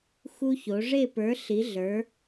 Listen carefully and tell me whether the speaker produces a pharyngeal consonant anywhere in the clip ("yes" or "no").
no